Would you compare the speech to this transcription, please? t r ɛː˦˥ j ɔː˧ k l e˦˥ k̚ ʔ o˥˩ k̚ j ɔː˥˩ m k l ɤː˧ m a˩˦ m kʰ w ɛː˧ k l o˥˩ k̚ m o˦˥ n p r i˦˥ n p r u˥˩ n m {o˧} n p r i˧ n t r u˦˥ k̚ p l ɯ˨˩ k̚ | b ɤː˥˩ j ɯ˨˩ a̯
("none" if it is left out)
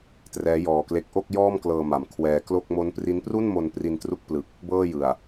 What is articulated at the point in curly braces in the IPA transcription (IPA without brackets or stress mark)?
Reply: o˧